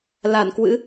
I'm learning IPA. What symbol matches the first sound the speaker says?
l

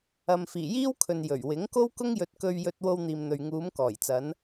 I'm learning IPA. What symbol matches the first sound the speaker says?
ɐ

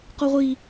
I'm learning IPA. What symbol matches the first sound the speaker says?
q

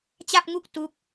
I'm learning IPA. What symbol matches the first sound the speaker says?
t͡ɕ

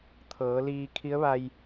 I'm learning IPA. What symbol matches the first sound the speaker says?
t̪ʰ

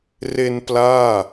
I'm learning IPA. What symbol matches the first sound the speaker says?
r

